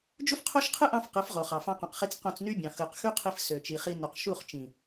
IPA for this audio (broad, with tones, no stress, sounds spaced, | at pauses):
d͡ʒ u˦ f qʰ o˦ ʃ qʰ ɯ˦ ʔ ɑ̃˧ f q ɯ˨˦ f ʁ o˨ χ ɑ˨ f ɑ̃˧ q õ˨ q χ i˧ t͡s q õ˧ t͡s n y˦ bʲ ɑ̃˨ x ɯ˨ q x y˦ qʰ i˧ f s ø˨ t͡ʃ i˨ χ i˦ n u˨ q ʃ u˦˨ χ t͡ʃ ĩ˨